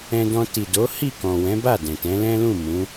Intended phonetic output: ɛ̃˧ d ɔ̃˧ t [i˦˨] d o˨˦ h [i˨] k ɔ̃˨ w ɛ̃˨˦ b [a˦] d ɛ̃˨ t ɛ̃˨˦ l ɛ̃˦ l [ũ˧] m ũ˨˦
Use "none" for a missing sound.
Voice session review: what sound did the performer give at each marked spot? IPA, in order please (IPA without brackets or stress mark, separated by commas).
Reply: i˨, i˦˨, a˦˨, ũ˦˨